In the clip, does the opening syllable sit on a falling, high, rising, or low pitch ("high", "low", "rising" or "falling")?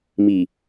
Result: low